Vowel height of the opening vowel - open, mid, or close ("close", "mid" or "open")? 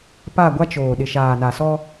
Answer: open